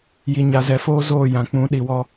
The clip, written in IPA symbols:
j i˨ ɲ a˨ z ɛ˨ f oː˦ z oː˦˨ j ã˨ k͡p ũ˨˦ ɗ i˨ w ɔ˦

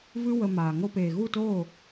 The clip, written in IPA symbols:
v ɨ˦ w ə˧ m aː˨ ŋ o˧ p eː˨ ɣ u˦˨ t oː˦˨

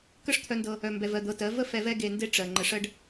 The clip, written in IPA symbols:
k ə˦ ʂ t̪ʰ œ˧ n d ɤ˧ | œ˧ m b ɛ˧ v ɜ˧ d̪ ɤ˧ t ɜ˨˦ v ə˦ f ɛ˧ v ɛ˦ ɡ e˧ n d e˦ ʈ͡ʂ ɜ˨ ŋ͡ǃ ə˧ ʂ ɜ˦ ɖ

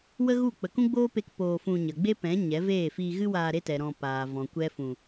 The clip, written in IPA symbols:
w ə˦ ɣ u˦˨ k͡p ə˨ k ũ˦ ɡ͡b oː˦ p e˧ k p oː˧ f ũ˧ ɲ ə˨ ɡ͡b e˦ p ɛ̃˨˦ ɲ ɛ˨˦ v eː˦˨ f iː˧ ɣ ɨ˦ w aː˧ ɾ e˦ t ɛ˨ ɾ ɔ̃˧ p aː˨ v ɔ̃˨ kʷ ɛ˦ f ũ˧

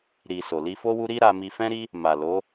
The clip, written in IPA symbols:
ɾ i˨ s o˨ l i˧ f o˦ w u˦ ɾ i˦ ɾ a˧ m i˧ f ɛ̃˦ ɾ i˦ | m a˨ l o˨˦

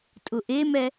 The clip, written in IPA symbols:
tʼ ʊ ʔ e m ɛ

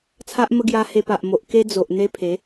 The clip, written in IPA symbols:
t͡sʰ a˦ ʔ m ə˦ ɡ j a˧ h e˧ p a˨ ʔ m o˨ ʔ k e˦ d͡z o˨ ʔ n̪ e˦ pʰ e˨˦

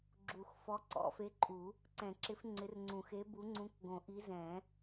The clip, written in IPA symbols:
ɡ͡ǁ u˨˩˦ x f ɔ˨˥ ǀ ɔ̰˨˩˦ f e˨˥ ǃʼ u˨˩˦ | ǀ ɛ̃˨˩˦ ǁ ɪ˨˥ f ŋ͡ǀ ɪ˨˥ r ŋ͡ǀ ũ˨˩˦ x e˨˥ b u˨˥ ŋ͡ǀ ũ˨˥ k ɡ õ˨˩˦ ʔ i˨˥ z ɛ̃˨˩˦

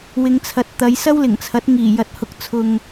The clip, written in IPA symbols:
w ɪ˨˧ ŋ t͡sʰ ɐ˨ t̚ t̪ ɐ˨˧ j s ɐ˥ w l ɪ˨˩ ŋ t͡sʰ ɐ˨˥ t̚ ŋ iː˨˩ j ɐ˨ t̚ h ʊ˨ k̚ t͡sʰ ʊ˨ ŋ

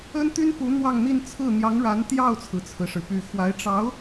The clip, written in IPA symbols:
ə˥ n t̪ y˥ n p u˧˥ n̪ w ɑ˥˧ ŋ n̪ i˥˧ n t͡sʰ ɹ̩˥˩ n̪ j ɑ˧˥ ŋ ɻ a˧˥ n t̪ j ɑ˥˩ ʊ̯ t͡sʰ ɹ̩˩ t͡sʰ ɹ̩˩ ʂ ɻ̩˩ p y˨˩ x w a˧˥ ɪ̯ ʈ͡ʂ ɑ˧˥ ʊ̯

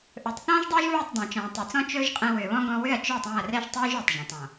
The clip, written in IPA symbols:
ʔ ɵ˨ tˤ θ ɔ̃ː˦ ʒ dˤ ɵː˦ ʒ β ɛ˦˨ tˤ dˤ ã˨ t͡ʃ ɔ̃ː˨ tˤ ɵ˨ t͡s ɔ̃˦ t͡ʃ ɵː˦ ʒ qʼ ɛ̃˧ w ʏː˨ β ɔ̃˦ ɡ ɔ̃˧ w ʏ˦˨ ɐ̯ t͡ʃ ɵː˦˨ tˤ æ̃˦˨ ɐ̯ r ɛ˦ ʒ tˤ ɵː˦ ʒ ʏː˨ tˤ ʒ ɛ̃˨ tˤ ɔ̃˨

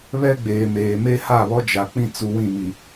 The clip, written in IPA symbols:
β ɛ˦ ɡ͡b eː˨ m eː˨ m e˦ h a˦˨ β ɔ˦ d͡ʒ a˨ k͡p ĩ˦ t͡s u˨ w ĩ˦˨ m i˨

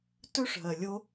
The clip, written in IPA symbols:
t ɵ˦ ʂ ɦ ɜ˨ lʲ o˦

